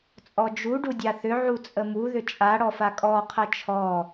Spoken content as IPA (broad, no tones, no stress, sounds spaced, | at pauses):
t͡sʼ ɔ d͡ʒ u ɖ u dʲ a θ ʏ ʕ u t͡sʼ ə m u ð ʏ t͡ʃʼ a ɽ ɔ f a kʼ ɔ qʰ ɐ t͡ʃʰ ɔ